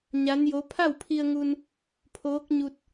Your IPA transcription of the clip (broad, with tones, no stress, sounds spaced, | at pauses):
ɲ a˧˥ n j o˧˥ pʰ a˥˨ w pʰ i˧ ə̯ ŋ u˧ n | pʰ oː˧˥ k̚ ɲ u˧ t̚